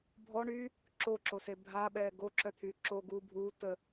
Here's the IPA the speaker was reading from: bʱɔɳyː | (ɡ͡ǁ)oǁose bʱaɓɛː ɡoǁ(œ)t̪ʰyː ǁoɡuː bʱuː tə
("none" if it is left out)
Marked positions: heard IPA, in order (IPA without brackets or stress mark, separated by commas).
ǁ, œ